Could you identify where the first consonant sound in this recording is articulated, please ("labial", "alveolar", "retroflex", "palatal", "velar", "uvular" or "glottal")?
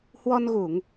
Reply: glottal